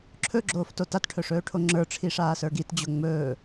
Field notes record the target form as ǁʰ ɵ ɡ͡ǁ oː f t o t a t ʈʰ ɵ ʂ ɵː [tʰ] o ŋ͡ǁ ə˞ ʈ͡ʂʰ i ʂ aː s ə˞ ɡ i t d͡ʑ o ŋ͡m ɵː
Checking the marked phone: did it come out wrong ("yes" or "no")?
yes